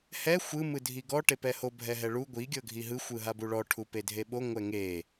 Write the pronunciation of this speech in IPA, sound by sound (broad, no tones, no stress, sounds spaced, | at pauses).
h ɛ xʷ ɯ m ɯ dʱ i ɡ ɔ ʈ e p ɛ h o bʱ ɛ ɦ ɛ ɭ u ɡʷ i ɡʲ ɤ ɡʱ i ɦ ɯ xʷ ɯ ɦ a b u ɭ ɔ ʈʰ u p e dʱ e ɓ o ŋʷ ɛ ŋ e